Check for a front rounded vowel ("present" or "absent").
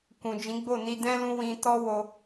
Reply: absent